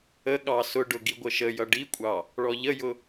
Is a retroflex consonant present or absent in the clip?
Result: present